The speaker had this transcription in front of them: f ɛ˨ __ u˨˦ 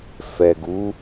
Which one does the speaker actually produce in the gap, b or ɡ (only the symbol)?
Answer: ɡ